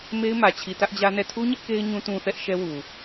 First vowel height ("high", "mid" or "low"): mid